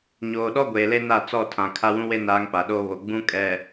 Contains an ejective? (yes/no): yes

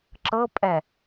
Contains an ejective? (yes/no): yes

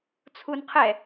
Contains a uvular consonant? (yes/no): yes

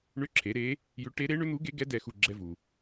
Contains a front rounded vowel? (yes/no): yes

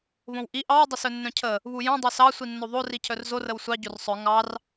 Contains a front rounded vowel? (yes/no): yes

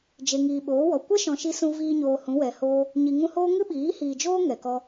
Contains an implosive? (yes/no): yes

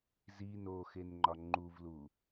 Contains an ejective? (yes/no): no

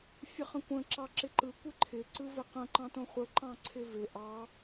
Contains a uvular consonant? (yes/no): yes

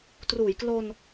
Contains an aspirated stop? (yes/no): no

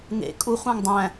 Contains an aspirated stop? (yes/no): no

